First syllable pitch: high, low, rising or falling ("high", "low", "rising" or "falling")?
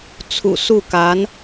low